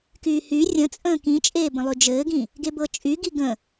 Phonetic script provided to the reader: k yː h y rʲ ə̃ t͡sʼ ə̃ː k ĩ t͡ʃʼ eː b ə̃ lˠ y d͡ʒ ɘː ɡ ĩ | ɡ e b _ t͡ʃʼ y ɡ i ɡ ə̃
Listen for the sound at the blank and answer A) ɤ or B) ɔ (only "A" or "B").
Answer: A